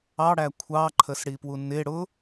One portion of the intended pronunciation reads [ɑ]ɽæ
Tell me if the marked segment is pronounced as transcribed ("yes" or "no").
yes